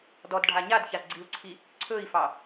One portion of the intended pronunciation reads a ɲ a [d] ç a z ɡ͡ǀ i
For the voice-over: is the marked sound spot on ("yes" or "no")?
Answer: yes